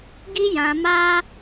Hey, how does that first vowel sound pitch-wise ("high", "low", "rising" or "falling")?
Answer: high